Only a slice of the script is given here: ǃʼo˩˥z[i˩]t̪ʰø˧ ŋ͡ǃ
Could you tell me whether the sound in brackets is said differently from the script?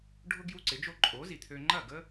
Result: no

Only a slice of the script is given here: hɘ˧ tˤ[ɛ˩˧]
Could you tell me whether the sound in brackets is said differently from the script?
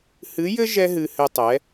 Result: no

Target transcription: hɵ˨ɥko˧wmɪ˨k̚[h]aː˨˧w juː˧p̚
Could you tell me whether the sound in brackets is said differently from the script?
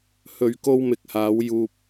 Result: no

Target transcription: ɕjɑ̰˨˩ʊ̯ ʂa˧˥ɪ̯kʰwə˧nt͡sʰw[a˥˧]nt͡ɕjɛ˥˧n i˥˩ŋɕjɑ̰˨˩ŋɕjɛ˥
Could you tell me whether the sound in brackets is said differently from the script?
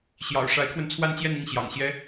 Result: no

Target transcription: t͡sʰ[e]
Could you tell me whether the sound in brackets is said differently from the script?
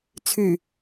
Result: yes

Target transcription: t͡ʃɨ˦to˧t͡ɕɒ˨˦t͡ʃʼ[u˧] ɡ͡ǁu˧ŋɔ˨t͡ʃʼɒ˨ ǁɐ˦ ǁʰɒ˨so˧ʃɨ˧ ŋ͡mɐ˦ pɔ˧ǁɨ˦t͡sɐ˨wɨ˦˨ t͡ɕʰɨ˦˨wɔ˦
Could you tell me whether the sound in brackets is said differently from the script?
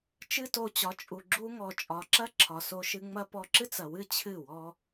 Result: yes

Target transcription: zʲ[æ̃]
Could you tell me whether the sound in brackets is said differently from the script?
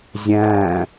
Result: no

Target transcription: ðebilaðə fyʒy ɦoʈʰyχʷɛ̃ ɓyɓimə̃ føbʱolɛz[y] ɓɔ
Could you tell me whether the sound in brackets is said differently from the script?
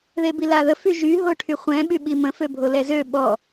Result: yes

